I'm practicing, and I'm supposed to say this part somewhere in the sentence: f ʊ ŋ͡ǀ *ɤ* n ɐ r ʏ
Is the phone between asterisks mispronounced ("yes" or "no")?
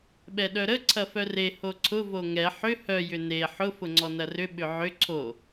yes